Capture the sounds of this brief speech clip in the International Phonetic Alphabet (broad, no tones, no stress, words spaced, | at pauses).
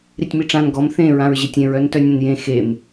ɾitʲmiʈ͡ʂãn ɡɔm θẽ ɹãɹʑetʲẽɹ œntœnʲẽnjẽ xem